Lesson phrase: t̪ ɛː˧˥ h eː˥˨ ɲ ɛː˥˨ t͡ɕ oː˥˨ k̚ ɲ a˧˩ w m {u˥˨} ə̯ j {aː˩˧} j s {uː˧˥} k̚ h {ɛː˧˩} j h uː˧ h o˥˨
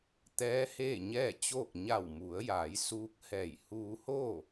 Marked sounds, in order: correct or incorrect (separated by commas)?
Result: incorrect, correct, correct, correct